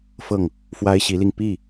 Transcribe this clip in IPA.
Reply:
f ɤ˥˩ ŋ | f w a˥ ɪ̯ ɕ i˧˥ l i˧ ŋ p i˥˩

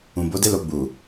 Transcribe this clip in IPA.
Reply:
ũ˨ b o˨˦ d e˦ l o˧ ɡ͡b u˨

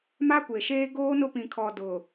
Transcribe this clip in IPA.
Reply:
m a˦ kʷ e˨ ʃ eː˦ ɡ oː˦ n ʊ˦ p ĩ˨ kʰ ɔ˨ d ʊ˨

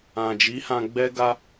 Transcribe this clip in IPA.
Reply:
ã˨ d͡ʒ i˨˦ h ã˧ ɡ͡b ɛ˦ ɡ a˦

